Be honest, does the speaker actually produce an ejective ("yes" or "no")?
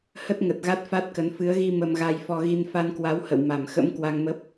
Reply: no